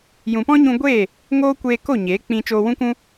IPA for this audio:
j ũ˨ p ɔ̃˦ ɲ ũ˧ ɡʷ eː˦˨ | ŋ oː˦ kʷ eː˧ k o˦˨ ɲ eː˨˦ k͡p ĩ˧ t͡ʃ oː˧ w ũ˦ k ũ˦

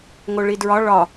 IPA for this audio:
ŋ o ɭ i d ɹ ɒ ɭ ɒ

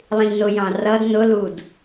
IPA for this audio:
lˠ ĩ ʎ n ʊ j ɑ̃ r ʌ d n ʊ l u d

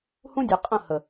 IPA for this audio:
h ũ˦ dʲ e˨ qʼ ə̃˦˨ h ə˨

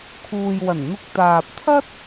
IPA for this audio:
kʰ uː˨ j w ɐ˨˩ n n̪ ʊ˧ k̚ t̪ aː˨ p̚ t̪ʰ ɐ˥ t̚

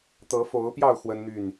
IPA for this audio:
t̪ ɤ˨˦ f o˨˦ ʊ̯ p j ɑ˥˨ ʊ̯ x w ə˦ n n̪ y˥˨ n

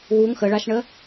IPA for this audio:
w u ŋ x ə ɭ a ʃ ɳ ə

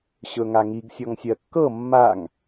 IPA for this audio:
ɕ ɵ ŋ a ŋ i ɡ sʲ ɔ ŋ sʲ ɜ kː ɤ mː a ŋ

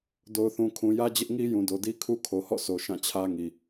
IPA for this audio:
d o˨ ʊ̯ θ ũ˨ kʰ ũ˨ j ä˦ d͡ʑ ɪ˦ ʔ ŋ i˦ j ũ˨ d o˨ d i˦ kʰ u˦ kʰ o˨ h ɔ̰˦˨ s o˨ ʃ ã˦˨ t͡ɕʰ ä˦ ŋ i˨

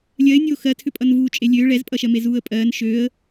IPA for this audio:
lʲ ɜ ɪ̯ nʲ oː x ɜ tʰ ʏ pʼ ʌ n v uː t͡ʃʼ e lʲ øː ɭ ɛ z pʼ ʌ ʃ ɜ m e z uː ə̯ pʼ ɜː n ʃ øː ə̯

